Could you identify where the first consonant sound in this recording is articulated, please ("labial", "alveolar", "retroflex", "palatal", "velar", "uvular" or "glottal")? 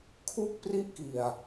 velar